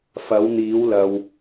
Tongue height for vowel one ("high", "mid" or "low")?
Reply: low